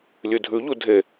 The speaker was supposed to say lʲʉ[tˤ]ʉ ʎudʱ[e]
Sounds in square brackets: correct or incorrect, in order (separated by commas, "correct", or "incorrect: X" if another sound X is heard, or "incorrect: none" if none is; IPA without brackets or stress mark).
incorrect: dʱ, correct